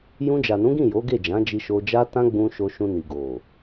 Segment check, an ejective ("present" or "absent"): absent